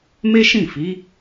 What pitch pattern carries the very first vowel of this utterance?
high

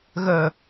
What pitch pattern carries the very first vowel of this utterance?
low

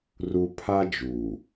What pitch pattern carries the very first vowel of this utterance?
high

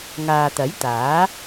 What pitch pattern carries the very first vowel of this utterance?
low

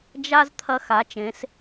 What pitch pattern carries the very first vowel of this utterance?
high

